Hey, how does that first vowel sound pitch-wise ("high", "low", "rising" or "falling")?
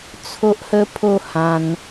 high